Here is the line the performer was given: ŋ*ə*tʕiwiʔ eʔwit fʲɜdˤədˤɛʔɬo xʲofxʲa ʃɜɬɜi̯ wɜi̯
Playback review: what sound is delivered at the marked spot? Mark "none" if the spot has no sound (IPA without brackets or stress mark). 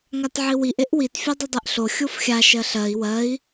a